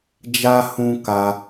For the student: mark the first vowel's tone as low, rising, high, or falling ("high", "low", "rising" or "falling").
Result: high